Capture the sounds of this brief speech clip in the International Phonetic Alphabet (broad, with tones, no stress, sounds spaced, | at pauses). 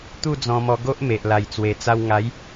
t̪ u˥˧ d͡z ɔ̃˧ m ɔ˧ ɡ o˦ ʔ m e˨ ʔ l a˨˩ j t͡s w e˨˩ t͡s a˧ w ŋ a˨˦ j